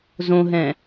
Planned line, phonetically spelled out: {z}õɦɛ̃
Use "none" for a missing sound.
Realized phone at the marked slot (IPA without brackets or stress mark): z